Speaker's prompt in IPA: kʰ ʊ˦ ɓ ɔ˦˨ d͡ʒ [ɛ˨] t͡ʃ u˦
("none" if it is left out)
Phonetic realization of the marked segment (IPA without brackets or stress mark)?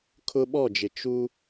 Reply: ɪ˨